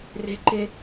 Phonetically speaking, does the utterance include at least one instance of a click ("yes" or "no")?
yes